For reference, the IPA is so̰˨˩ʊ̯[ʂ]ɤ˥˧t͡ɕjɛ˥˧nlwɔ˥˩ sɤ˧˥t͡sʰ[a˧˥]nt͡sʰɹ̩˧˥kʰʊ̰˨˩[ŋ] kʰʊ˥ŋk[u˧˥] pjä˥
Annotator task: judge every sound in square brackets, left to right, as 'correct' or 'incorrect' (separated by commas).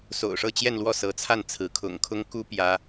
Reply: correct, incorrect, correct, incorrect